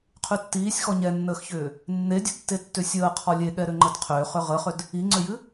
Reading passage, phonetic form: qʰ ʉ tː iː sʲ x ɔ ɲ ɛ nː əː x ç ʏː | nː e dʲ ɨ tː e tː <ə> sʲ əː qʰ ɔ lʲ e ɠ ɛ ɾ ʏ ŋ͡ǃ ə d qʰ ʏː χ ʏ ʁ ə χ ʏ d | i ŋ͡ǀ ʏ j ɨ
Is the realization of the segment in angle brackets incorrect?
yes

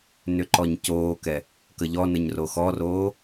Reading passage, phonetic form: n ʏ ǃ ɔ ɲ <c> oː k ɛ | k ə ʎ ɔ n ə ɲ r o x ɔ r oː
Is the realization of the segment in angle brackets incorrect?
no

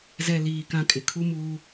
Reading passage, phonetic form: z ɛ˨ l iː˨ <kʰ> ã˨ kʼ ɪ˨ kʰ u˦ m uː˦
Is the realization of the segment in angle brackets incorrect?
yes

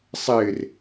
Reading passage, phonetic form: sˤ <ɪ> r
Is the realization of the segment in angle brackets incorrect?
no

